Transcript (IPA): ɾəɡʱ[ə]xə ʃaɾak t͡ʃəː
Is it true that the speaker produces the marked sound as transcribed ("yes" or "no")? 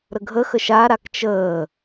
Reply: yes